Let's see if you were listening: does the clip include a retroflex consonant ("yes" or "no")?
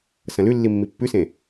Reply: no